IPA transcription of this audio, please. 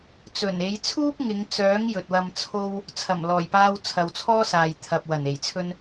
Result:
t͡s ɵ˨˩ n e˨˧ j t͡sʰ uː˥ p̚ ŋ ɪ˨˧ ŋ t͡s œː˨˥ ŋ j ɵ˨ t̚ w ɐ˧ m t͡sʰ o˥ w | t͡sʰ ɐ˨˩ m l ɔː˨˩ j p aː˧ w t͡sʰ ɐ˨ w t͡sʰ ɔː˥ s aː˨ j t̪ʰ ɐ˨ p̚ w ɐ˨˩ n e˨˩ j t͡sʰ ɵ˥ n

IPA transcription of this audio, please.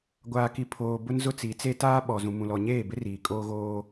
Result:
ɡʷ aː˨ k i˨ pʰ oː˨ b ʊ˦ n z ʊ˦ t͡s i˨˦ t͡s e˦ t aː˦ ɓ ɔ˨ z ũ˨ m ũ˨ l ɔ˨ ɲ eː˦˨ b ɪ˦ r iː˨ kʼ oː˦ ɣ oː˦

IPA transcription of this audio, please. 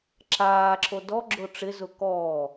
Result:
ǁ aː ǁʰ o d ɔ ɡ͡ǁ o ʈ͡ʂ ɪ z ʊ k ɔː

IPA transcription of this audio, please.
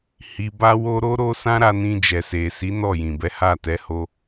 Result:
h i˧ b a˦ w o˦ ɾ o˦ ɾ o˦ s ã˦ ɾ a˧ n ĩ˧ d͡ʒ ɛ˨ s e˨ s i˨˦ n ɔ˦˨ j ĩ˨ b ɛ˨˦ h a˦˨ t ɛ˨˦ h o˧

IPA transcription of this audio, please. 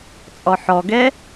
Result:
t͡sʼ ɔ ħ ɔ ɡ ɛ

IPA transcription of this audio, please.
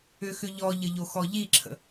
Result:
ʏ x ʏ ʎ ɔ ʎ ə ʎ o x ɔ ʎ i ǁʰ ə̰

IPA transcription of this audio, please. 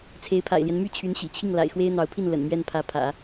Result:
t͡sʰ e˧˥ ɪ̯ pʰ a̰˨˩ ɪ̯ l j ɛ˦ n m y˥˩ t͡ɕʰ y˧˥ n ɕ ḭ˨˩ t͡ɕʰ i˥˩ ŋ l a̰˨˩ ɪ̯ x w e˥ ɪ̯ n̪ ɑ˧˥ ʊ̯ pʰ i˥˩ n l ə̰˨˩ n m ɥ ɛ˥˩ n pʰ ä˧˥ pʰ ä̰˨˩˦

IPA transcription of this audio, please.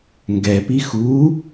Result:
ŋ ɡ ɛ p i x u

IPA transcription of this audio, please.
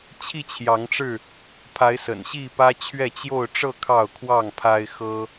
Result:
t͡ɕʰ i˥˨ t͡ɕʰ j ɑ˨˦ ŋ ʈ͡ʂ ɻ̩˥˨ | pʰ a˨˦ ɪ̯ s ə̰˨˩ n ɕ i˥˨ p ä˦ t͡ɕʰ ɥ ɛ˥˨ t͡ɕ j o˥˨ ʊ̯ ʈ͡ʂ ɤ˥˨ kʰ ɑ˥˨ ʊ̯ kʰ w ɑ˥˨ ŋ pʰ a˦ ɪ̯ x ɤ˦

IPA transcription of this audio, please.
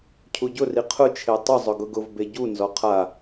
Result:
cʰ u ɟ ʊ r i qʰ ʊ t͡ʃʰ e tˤ ʊ zˤ ʊ ɡ ʊ ɡ ʊ v b e ɟ u n z ɔ qʰ a

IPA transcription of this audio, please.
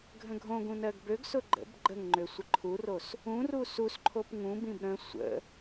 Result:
ɡʱ ə̃ ɡʱ õ ɡ ũ n ɜ ɡ b ø ɡ s ʊ ɡ͡ǃ ə̰ b ɡ͡ǃ ə ŋ ŋ͡ǃ ø sʷ ə ǃʰ u r o s | ũ r u s u s ǃʰ o p ŋ ũ b ĩ b ɾ ə̃ sʷ ə̰

